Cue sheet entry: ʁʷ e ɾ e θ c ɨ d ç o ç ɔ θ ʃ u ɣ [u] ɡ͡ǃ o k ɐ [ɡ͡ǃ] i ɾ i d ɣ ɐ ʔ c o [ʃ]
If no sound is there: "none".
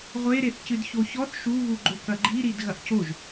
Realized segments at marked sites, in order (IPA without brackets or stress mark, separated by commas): u, ɡ͡ǃ, ʒ